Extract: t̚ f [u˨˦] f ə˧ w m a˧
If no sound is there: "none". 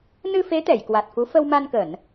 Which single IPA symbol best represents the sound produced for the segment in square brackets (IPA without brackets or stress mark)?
u˨˦